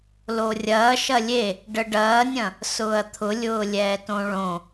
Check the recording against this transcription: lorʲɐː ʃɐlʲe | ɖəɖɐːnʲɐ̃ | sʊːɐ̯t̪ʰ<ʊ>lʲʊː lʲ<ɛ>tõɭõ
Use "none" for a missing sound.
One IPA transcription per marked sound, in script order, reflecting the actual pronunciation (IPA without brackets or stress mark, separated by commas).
ʊ, ɛː